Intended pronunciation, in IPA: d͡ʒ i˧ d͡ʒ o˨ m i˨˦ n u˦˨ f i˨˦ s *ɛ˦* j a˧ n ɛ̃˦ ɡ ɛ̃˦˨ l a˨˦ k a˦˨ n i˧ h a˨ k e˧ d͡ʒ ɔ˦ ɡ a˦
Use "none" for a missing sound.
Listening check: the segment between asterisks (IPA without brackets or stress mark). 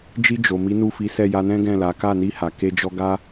ɛ˦˨